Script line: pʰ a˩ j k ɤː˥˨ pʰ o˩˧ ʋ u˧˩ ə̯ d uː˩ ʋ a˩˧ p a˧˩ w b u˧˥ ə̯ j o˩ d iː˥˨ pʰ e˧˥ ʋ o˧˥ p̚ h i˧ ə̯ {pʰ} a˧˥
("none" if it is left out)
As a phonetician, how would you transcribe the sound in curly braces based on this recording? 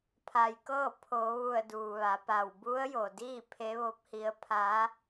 pʰ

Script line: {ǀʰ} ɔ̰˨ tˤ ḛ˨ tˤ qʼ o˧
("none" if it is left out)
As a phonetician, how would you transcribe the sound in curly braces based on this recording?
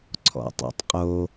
ǀʰ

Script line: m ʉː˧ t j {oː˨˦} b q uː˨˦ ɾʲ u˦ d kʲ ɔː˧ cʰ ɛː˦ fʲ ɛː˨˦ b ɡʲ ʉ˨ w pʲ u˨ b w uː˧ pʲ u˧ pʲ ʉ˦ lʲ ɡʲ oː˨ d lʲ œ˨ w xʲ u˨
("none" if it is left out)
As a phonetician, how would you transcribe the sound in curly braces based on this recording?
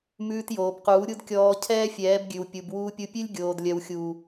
oː˨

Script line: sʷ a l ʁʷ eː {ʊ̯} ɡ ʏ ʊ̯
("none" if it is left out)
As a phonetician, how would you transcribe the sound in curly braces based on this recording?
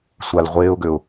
ʊ̯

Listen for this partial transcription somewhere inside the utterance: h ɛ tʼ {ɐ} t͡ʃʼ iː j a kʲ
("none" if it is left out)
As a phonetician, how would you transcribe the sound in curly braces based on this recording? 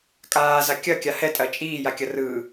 ɐ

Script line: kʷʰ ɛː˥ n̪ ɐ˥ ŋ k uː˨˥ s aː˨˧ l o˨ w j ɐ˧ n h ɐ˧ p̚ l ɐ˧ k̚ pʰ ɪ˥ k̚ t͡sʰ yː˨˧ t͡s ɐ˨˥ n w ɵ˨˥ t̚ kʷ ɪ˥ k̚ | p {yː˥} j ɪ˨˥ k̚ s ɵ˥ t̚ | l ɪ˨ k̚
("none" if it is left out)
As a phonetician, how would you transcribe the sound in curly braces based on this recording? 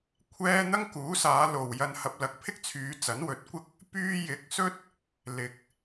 yː˥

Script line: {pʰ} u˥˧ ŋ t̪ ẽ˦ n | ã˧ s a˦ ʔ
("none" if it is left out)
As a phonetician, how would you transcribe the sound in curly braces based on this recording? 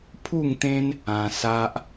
pʰ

